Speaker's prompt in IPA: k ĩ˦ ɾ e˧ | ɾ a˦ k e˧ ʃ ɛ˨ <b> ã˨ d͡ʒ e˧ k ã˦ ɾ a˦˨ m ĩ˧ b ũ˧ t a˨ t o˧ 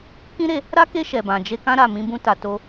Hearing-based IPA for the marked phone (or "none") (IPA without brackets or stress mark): b